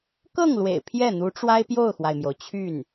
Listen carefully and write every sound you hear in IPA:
k ɤ˥˩ ŋ l w ḛ˨˩ ɪ̯ pʰ j ɛ˥˩ n̪ u˧˥ ʈ͡ʂ w a˥ ɪ̯ p j o˥˩ ʊ̯ x w a˩ ɪ̯ m j o˩ ʊ̯ t͡ɕʰ y˥˩ n

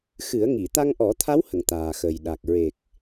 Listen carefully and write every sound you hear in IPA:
x ɨ˨˩˦ ə̯ ŋ i˨˩˨ t̪ a˧ ŋ ʔ ɔ˨˩˦ t̪ʰ a˧˥ w h ə˨˩˨ ŋ t̪ aː˨˩ x ə˨˩ j ɗ a˨˩ k̚ ɹ e˨˩ k̚

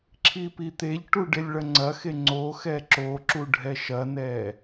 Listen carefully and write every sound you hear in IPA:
ǁʰ i p i t̪ e ʎ ʈ u ɖ e lʲ ɭ ɐ ŋ͡ǀ ɐ x e ŋ͡ǀ o x ɛ ǁ o ǁ u ɖʱ ɛ ʃ ɐ n ɛ

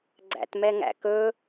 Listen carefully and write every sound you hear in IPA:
ɡ͡ǀ æ̰ t m ɛ ŋ æ̰ k ɵ

